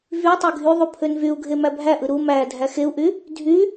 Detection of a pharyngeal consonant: absent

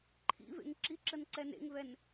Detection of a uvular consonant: absent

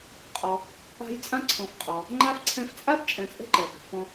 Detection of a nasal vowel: present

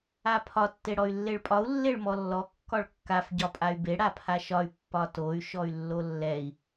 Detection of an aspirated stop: present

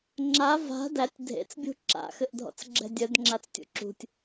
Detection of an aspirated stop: absent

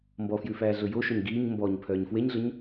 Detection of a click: absent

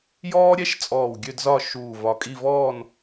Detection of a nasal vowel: absent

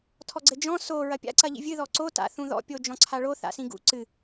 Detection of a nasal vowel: present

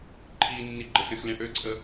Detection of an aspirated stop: present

